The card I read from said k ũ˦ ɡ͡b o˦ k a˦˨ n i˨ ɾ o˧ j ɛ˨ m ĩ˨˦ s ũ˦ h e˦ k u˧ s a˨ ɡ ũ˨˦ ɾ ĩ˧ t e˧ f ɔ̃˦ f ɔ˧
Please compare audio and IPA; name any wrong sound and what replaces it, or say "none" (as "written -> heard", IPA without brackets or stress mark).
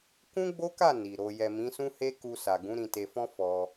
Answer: none